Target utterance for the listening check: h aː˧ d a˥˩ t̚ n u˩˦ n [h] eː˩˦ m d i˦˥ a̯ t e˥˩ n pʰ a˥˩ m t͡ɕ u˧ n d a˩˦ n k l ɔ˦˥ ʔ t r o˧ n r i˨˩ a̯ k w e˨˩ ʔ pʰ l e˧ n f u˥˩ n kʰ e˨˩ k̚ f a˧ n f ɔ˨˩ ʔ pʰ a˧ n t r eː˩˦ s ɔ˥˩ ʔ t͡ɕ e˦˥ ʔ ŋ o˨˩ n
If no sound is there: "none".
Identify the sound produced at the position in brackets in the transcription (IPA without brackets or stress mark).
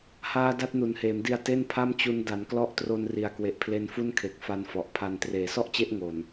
h